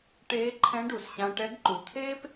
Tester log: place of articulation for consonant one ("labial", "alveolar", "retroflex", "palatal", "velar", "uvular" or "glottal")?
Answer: retroflex